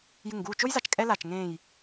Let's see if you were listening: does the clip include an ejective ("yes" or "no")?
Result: yes